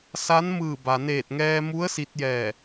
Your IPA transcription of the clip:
s a˧˥ n m ɯː˧˩ b a˩ n eː˧˩ t̚ ŋ ɛː˧ m u˧˥ ə̯ s i˧ t̚ j ɛː˧˩

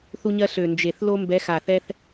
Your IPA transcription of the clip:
θ u˦ ɲ ɜ˦ ɬ ø˨˩ n d͡ʒ e˨˩ θ l o˦ m b ɛ˨˦ x a˨˩ θ ɛ˦ θ

